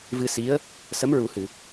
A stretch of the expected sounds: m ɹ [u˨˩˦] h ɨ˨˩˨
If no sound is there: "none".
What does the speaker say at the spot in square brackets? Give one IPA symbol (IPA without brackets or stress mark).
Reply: u˨˩˦